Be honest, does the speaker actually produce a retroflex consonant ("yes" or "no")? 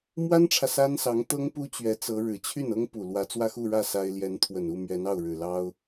yes